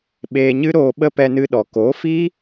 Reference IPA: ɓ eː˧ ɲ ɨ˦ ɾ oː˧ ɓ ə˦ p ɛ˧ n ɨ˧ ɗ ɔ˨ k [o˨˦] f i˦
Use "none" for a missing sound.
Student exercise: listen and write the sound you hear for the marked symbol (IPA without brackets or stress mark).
o˨˦